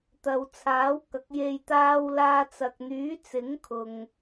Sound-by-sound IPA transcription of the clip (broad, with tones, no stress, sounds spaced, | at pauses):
t̪ ɐ˨ w t͡sʰ aː˨˥ w k ɐ˨˥ k̚ j e˧ j t̪ aː˧ w l aː˧ t͡s ɐ˨ k̚ n̪ yː˨˥ t͡s ɪ˨˥ ŋ kʰ ʊ˨ ŋ